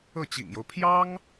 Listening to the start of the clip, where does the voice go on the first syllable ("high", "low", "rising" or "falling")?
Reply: falling